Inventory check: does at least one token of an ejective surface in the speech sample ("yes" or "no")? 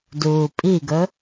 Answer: yes